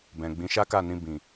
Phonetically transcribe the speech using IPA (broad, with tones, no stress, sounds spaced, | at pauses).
b ɛ̃˨ ɡ͡b ĩ˨˦ ʃ a˦ k a˦˨ n ĩ˧ b ĩ˨